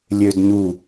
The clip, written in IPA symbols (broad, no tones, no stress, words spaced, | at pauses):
lʲødɲu